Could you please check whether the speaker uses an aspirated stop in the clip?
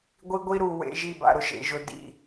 no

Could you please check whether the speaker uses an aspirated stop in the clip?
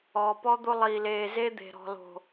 no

